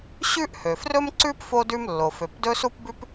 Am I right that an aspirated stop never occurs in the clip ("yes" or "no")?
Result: yes